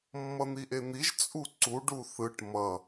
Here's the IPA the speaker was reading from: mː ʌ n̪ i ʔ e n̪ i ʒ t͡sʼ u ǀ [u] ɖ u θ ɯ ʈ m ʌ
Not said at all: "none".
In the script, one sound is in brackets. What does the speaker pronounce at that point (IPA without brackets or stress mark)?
u